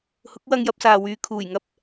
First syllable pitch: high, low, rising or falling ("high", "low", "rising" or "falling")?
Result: rising